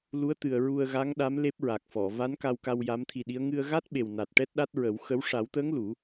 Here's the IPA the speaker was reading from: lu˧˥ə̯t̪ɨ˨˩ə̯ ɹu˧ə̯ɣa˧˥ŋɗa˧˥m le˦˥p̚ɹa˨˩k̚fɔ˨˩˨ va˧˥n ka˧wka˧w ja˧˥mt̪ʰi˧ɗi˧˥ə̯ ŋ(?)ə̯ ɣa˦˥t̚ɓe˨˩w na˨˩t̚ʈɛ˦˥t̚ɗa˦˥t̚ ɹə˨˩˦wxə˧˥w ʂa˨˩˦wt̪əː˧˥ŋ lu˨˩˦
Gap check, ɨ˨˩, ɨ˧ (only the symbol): ɨ˧